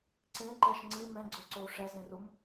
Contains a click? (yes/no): yes